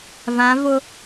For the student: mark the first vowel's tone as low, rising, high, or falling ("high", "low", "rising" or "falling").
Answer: rising